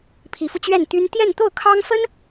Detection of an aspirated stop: present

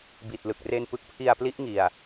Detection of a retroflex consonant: absent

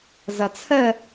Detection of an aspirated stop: present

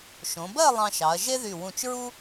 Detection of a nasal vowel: present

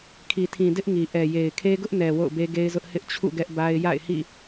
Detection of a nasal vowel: present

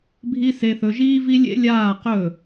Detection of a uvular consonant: present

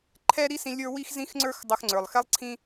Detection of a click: present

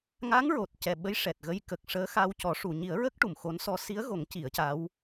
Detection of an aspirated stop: absent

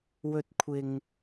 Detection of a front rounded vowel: absent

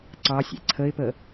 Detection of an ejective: absent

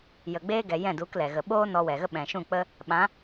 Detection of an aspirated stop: absent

